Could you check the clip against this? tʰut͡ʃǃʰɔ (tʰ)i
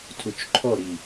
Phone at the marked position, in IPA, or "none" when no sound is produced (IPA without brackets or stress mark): ɾ